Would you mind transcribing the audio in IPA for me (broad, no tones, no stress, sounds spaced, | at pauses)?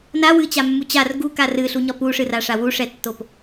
n a w ɨ t͡ɕ a mː u t͡ɕ a r ɡ u k a r ɨ ɬ u ɲ ɒ p u ʂ ɨ r a ʂ a w u ʂ ɛ tː o p